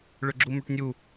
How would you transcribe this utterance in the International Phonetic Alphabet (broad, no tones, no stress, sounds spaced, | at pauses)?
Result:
ɭ ʏ ɡ͡ǁ u m u ʈ nʲ u